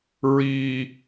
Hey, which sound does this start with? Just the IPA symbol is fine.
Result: ɹ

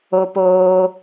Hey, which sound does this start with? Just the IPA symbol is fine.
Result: o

